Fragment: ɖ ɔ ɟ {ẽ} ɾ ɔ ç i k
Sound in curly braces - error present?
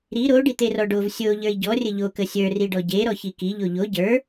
yes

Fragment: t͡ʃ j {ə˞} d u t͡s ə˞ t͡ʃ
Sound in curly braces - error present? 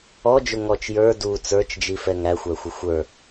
no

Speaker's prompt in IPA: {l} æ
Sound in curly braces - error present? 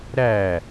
yes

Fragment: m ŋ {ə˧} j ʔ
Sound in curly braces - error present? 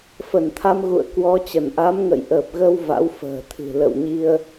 yes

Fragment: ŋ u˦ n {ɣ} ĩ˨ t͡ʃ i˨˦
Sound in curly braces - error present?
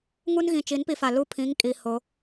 no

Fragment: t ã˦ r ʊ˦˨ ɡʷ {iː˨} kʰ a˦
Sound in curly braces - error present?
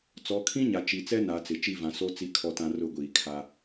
no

